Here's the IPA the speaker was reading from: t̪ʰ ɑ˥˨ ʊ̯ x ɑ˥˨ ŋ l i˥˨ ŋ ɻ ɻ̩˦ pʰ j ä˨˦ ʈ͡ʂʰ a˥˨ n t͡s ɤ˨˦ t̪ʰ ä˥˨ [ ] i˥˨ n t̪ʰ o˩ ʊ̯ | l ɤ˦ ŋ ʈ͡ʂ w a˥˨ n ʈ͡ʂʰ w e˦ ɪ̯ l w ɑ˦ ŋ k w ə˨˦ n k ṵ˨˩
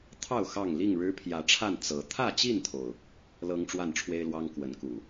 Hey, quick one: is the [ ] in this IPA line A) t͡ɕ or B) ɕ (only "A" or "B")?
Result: A